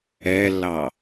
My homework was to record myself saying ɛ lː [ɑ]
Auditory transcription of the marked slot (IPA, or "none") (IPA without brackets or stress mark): ɑ